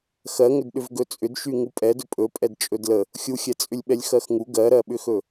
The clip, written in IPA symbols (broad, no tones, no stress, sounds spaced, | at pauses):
x ɜ ŋ ʏ d ɗ ʏ v ɡ ɵ t͡sʼ ʏ d ʃ y ŋ u pʼ ɛ d ɵ pʼ ɵ pʼ ɛ d t͡ʃʼ ɵ d l ə | xʲ u xʲ ɛ t͡sʼ ʏ lʲ ɓ ɛ lʲ x ɜ x ŋ u ɡ ɜ ɾ ɜ ɓ ʏ x ɵ